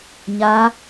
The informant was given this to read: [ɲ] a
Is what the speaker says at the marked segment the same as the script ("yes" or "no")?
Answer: yes